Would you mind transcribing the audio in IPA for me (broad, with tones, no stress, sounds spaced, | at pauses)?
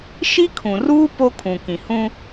ʃ i˦ kʰ ũ˨ r uː˦ p o˦ kʰ ũ˨ k ĩ˨ h ũ˦